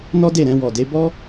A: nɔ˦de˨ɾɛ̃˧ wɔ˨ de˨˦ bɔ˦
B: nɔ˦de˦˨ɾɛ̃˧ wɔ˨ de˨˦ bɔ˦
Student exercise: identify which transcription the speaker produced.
B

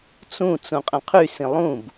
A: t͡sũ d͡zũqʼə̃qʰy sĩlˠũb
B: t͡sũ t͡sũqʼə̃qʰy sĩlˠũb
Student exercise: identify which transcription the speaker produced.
B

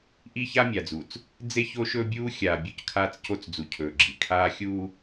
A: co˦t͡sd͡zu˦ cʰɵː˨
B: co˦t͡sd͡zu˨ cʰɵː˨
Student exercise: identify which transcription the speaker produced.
B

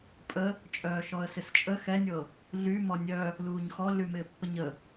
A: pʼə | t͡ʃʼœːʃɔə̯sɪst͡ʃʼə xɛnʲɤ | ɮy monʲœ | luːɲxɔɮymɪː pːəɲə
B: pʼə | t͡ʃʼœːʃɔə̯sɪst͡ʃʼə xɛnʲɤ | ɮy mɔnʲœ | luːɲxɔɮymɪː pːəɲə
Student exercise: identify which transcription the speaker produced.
B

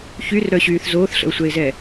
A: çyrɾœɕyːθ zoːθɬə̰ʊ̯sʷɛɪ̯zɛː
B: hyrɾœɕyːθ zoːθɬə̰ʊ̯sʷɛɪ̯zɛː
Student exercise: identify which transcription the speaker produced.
A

